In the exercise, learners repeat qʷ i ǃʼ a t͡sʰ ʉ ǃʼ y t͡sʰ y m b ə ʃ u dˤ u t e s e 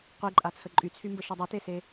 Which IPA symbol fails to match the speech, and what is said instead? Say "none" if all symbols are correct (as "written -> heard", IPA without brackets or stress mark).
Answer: ʉ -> ə